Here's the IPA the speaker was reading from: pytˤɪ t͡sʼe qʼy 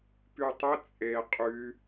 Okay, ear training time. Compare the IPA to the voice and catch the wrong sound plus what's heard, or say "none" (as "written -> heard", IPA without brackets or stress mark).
none